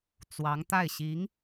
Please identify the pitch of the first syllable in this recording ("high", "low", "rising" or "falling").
rising